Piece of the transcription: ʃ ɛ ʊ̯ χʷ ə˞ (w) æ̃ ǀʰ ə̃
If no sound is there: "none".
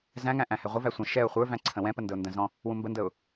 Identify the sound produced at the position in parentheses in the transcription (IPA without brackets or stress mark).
v